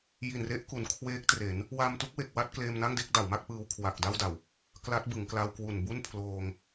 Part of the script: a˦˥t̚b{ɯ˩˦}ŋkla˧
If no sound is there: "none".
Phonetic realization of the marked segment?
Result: ɯ˩˦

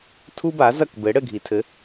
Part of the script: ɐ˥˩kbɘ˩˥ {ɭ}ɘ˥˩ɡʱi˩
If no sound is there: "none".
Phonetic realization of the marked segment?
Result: ɽ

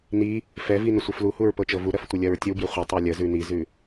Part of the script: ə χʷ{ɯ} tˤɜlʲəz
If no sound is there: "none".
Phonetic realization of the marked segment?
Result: ə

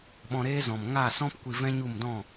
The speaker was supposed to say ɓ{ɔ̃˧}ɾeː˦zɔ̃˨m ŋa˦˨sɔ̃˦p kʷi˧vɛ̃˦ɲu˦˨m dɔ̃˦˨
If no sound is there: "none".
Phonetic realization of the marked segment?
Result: ɔ̃˧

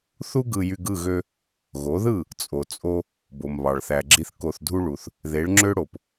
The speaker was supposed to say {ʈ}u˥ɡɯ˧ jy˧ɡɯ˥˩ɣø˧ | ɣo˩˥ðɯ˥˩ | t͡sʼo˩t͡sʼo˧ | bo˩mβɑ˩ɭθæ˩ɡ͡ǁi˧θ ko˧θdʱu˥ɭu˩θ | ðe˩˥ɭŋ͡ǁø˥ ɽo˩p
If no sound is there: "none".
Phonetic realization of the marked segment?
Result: θ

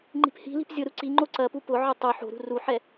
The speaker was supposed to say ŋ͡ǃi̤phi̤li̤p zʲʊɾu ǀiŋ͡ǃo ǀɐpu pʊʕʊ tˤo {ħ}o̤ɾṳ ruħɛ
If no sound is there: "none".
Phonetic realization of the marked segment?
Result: ħ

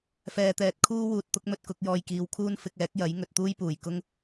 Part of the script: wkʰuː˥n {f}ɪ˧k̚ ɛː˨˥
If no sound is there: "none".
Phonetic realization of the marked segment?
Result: f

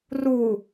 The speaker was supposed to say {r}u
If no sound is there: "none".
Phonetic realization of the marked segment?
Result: r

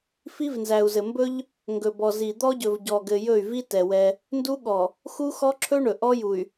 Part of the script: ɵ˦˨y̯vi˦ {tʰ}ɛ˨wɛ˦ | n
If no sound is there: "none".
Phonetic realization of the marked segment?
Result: t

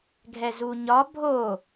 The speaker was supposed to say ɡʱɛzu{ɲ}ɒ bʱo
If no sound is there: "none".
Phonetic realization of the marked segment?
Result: ɲ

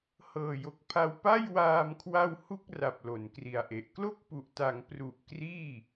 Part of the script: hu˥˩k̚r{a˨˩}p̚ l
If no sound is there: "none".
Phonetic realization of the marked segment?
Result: a˨˩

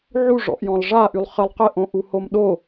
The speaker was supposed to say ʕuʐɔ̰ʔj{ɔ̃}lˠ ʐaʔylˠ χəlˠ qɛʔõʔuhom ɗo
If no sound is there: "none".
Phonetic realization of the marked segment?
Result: ɔ̃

